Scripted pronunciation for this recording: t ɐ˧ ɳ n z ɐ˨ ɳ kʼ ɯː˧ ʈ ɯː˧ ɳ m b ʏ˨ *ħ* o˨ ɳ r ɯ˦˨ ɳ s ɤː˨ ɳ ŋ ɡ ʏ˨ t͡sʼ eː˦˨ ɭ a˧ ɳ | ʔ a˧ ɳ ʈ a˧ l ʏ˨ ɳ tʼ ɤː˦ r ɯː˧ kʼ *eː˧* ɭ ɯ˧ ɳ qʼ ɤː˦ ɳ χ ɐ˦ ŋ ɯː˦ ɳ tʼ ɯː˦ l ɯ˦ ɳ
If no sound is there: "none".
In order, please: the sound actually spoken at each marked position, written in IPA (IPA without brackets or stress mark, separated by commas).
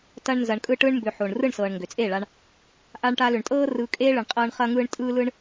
ħ, eː˦